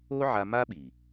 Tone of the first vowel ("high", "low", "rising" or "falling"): high